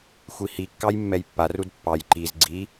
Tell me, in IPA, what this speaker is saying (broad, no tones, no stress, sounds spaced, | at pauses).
xʷ i h i kː ɑ j mː ɛ j pː a r u d pː ɑ j ǃ i z ɡ͡ǀ i